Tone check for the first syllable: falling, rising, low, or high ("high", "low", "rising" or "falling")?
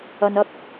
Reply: low